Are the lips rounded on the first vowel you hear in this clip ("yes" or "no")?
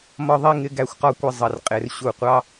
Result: yes